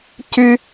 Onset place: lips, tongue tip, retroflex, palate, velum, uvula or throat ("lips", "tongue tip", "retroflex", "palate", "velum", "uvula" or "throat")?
palate